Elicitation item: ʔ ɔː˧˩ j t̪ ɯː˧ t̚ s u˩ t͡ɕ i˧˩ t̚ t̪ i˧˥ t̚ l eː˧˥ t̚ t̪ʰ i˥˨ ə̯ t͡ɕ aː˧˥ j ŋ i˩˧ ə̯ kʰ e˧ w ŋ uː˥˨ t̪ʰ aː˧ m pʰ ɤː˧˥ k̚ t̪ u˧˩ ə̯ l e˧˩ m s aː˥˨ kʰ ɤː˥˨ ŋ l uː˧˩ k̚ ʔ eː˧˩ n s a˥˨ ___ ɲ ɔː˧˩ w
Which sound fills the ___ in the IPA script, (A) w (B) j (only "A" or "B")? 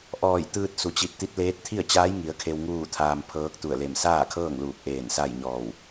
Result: B